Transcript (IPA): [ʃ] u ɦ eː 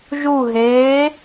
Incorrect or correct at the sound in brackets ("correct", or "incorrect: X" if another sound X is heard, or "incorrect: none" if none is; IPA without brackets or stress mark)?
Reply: incorrect: ʒ